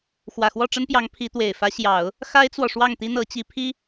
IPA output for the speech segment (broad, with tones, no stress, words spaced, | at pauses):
xwä˨˩xwɔ˥˩ʈ͡ʂə˥npjɑ˧˥ŋ pʰi˧˥t̪we˨˩ɪ̯ fä˧˥ɕjɑ˨˩˦ʊ̯ | xa˥ɪ̯t͡swɔ˨ ʂwɑ˥˩ŋt̪i˥n̪ɤ˧˥t͡ɕi˧˥ pʰi˥